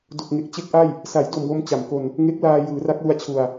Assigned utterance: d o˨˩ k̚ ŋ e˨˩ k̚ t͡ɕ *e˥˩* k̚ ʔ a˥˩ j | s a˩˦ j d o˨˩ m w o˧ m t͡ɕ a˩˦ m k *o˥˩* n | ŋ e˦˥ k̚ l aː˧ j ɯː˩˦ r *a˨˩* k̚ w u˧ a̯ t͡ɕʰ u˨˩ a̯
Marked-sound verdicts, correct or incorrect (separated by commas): correct, incorrect, incorrect